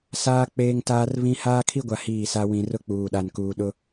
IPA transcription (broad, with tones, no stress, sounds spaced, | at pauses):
s aː˦ k͡p eː˦ ŋ t aː˦ r β ĩ˦ h aː˦ kʰ i˦ ɡʷ a˨ h iː˦˨ s a˦ w ĩ˨ r ʊ˦ k͡p uː˨ ɗ a˨ n k uː˨ ɗ ʊ˦